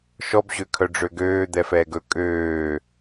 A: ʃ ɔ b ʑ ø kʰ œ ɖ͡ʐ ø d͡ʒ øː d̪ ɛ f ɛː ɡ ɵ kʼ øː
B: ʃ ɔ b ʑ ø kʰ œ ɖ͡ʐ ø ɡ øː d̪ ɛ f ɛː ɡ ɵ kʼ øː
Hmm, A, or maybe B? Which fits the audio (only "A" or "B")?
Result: B